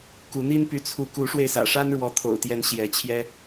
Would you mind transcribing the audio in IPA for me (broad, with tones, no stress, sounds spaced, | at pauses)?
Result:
k u˨˦ n̪ i˦ n p y˨˦ t͡sʰ u˨˦ k u˨˦ ʂ w e˧ ɪ̯ s ä̰˨˩ ʂ a˦ n ɻ w ɔ˨˦ t̪ʰ o̰˨˩ ʊ̯ t̪ j ɛ˨˦ n ɕ j ɛ˨˦ t͡ɕʰ j ɛ˦